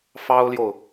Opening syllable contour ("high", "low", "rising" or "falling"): high